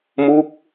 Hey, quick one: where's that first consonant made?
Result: lips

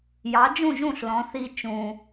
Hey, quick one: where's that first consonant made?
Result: palate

